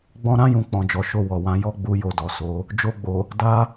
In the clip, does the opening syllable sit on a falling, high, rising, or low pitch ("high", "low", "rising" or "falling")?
high